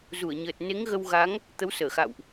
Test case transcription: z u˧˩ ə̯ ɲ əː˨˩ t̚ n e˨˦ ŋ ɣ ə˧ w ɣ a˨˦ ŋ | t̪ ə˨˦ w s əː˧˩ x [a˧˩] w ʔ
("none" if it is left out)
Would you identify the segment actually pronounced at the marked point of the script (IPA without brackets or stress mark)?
a̰˧˨